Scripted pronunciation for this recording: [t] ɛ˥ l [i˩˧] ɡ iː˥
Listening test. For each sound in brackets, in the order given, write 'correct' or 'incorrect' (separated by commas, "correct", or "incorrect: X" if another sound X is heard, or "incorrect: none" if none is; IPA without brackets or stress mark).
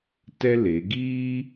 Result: correct, incorrect: e˩˧